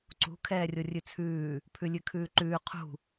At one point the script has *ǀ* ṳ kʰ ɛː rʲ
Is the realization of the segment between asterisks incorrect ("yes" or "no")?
no